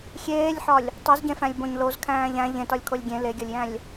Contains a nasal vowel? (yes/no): yes